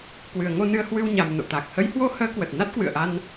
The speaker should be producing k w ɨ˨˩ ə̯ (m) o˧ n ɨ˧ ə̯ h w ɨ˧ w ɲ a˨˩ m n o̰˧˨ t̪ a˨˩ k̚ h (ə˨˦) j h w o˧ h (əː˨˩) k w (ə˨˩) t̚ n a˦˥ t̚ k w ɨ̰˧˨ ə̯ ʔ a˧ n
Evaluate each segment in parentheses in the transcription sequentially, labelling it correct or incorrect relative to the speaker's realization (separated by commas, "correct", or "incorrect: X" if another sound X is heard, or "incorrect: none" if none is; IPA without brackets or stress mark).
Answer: incorrect: ŋ, correct, incorrect: əː˨˦, correct